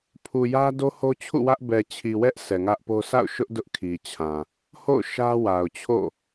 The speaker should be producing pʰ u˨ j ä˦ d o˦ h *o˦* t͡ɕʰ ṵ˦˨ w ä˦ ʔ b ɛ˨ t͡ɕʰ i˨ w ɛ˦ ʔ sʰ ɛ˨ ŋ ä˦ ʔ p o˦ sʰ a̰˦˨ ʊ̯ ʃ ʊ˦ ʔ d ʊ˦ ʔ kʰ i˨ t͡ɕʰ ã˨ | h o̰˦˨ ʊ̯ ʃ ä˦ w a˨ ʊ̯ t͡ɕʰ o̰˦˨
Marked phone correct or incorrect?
correct